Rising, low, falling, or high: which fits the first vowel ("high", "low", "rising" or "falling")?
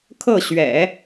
falling